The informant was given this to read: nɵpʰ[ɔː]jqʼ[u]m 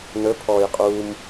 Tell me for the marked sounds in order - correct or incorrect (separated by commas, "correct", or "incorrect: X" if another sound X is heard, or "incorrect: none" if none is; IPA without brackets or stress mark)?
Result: correct, incorrect: uː